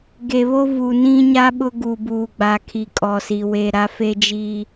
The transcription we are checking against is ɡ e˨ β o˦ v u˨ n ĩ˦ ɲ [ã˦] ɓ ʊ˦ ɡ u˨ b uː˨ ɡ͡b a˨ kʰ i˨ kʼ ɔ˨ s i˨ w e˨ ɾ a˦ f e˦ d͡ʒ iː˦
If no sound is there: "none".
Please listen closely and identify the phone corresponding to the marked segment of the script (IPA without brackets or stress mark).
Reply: a˦